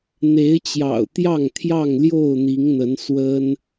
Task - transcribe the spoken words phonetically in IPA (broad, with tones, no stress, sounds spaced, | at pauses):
n̪ e˨˦ ɪ̯ t͡ɕ j ɑ̰˨˩ ʊ̯ t̪ j ɑ˥˨ ŋ t̪ʰ j ɑ˥˨ ŋ l j o˥˨ ʊ̯ n̪ i˨˦ ŋ n̪ ə˨˦ n s w ə˦ n